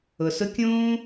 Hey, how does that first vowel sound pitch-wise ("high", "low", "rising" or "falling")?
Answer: low